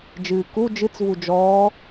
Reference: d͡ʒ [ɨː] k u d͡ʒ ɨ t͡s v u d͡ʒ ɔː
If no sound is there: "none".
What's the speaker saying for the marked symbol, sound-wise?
ɨː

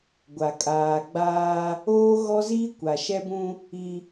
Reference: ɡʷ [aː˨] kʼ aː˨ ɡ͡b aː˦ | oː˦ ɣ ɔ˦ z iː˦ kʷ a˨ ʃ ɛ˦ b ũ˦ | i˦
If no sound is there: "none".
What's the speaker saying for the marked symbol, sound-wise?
a˨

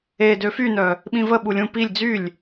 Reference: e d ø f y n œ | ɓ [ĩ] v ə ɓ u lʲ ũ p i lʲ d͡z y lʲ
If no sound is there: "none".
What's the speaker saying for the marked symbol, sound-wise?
ĩ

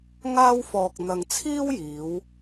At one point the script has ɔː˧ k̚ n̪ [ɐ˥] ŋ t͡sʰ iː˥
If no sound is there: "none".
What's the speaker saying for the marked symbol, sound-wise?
ɐ˧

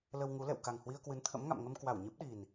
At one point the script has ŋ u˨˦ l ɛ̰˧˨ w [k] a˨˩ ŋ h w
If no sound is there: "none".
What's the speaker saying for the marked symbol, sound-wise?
k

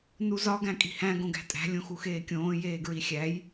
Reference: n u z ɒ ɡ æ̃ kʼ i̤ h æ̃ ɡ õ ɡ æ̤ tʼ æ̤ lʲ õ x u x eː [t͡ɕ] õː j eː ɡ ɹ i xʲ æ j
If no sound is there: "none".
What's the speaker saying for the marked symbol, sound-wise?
kʲ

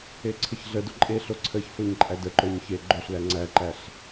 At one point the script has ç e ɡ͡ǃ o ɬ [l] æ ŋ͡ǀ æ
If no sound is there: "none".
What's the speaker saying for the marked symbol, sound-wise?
l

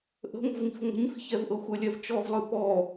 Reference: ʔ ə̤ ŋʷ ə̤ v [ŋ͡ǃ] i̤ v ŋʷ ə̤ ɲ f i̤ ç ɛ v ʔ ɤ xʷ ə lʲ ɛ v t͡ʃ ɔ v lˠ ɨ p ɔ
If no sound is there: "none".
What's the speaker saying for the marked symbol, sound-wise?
ŋ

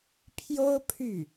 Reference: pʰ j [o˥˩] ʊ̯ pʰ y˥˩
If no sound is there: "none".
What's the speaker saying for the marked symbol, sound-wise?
o˥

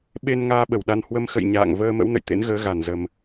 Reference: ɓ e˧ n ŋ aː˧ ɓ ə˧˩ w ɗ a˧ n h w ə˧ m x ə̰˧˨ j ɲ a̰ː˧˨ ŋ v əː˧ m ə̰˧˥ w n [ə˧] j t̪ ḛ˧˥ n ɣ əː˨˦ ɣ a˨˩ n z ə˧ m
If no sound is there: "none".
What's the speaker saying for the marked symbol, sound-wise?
ə̰˧˨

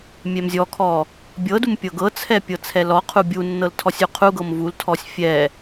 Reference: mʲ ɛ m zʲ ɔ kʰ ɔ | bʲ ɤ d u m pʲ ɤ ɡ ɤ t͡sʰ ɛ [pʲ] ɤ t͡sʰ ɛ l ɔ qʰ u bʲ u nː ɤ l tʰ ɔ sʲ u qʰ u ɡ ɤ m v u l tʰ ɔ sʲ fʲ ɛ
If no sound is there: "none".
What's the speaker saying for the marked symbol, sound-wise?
pʲ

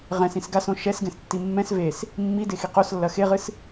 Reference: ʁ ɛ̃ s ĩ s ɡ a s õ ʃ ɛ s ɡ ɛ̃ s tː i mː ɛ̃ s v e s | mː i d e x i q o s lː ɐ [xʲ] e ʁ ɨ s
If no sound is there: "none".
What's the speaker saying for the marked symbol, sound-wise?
x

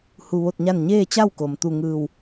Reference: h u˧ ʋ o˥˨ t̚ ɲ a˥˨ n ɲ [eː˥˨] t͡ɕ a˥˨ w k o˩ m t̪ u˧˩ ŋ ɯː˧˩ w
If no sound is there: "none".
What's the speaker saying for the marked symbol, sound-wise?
eː˥˨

